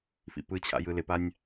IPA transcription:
fḭpɯt͡ɕʰa̰ jɯlɪpanʲ

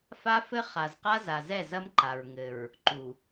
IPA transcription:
fa˦fɘ˦ χa˨zqa˦za˨zɛ˦˨ zɐ˦mǃa˨ɹ ŋɘ˨ɹ | ǃu˨

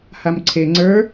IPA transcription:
hamǀʰe ŋ͡ǀə˞

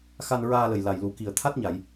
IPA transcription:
xa˧n ɹaː˧lə˨˩j la˨˩jlu˨˩˦ki˨˩ə̯ t̪ʰa˦˥t̚ɲa˨˩˨j

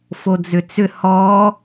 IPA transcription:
fod͡zʏt͡sʏ hɔ

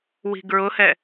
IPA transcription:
wi̤ɡɹʊhɛ

